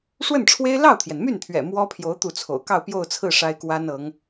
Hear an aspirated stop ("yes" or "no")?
yes